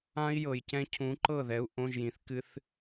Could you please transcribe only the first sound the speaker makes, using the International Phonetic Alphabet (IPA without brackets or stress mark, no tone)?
ã